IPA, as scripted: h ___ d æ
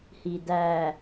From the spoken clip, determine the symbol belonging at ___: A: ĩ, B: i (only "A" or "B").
B